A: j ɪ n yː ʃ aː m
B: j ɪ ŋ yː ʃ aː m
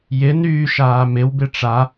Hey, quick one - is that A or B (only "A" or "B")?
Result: A